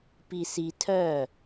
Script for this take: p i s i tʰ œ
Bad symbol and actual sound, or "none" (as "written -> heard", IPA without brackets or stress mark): none